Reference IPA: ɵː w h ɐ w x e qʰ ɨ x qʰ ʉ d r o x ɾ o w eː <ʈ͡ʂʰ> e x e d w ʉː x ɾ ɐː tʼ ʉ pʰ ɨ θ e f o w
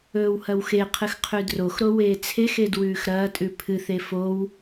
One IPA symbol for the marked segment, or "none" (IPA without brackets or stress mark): t͡sʰ